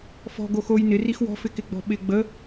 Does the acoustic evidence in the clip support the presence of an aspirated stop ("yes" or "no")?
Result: no